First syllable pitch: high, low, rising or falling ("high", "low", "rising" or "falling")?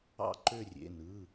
falling